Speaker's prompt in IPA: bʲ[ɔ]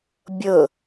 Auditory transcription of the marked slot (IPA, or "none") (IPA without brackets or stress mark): ɤ